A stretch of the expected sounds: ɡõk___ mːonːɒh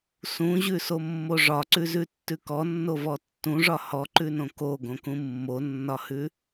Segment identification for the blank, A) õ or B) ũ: B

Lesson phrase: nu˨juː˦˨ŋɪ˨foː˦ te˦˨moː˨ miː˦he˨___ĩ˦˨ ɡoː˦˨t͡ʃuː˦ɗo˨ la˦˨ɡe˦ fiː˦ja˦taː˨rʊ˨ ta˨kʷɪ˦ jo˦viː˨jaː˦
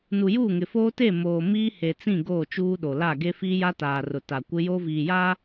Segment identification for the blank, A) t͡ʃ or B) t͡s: B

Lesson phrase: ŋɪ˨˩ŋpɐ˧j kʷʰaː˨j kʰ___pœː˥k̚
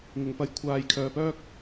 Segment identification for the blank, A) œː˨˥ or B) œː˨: B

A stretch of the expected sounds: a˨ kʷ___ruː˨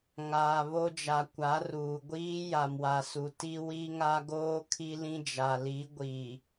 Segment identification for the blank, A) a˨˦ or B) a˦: A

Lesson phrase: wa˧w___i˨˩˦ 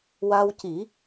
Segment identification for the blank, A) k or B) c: B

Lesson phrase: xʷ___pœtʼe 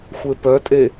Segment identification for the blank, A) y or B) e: B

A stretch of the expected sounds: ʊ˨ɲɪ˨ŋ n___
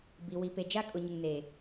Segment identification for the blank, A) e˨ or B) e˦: A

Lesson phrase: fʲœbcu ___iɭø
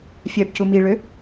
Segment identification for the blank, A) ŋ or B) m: B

